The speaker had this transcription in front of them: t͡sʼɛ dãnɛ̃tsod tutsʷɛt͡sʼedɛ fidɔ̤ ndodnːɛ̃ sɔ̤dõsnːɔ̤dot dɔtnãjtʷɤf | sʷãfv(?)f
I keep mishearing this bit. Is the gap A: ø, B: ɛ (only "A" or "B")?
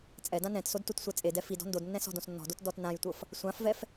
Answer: B